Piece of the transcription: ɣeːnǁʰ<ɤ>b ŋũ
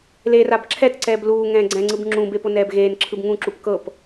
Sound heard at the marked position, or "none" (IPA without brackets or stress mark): ɯ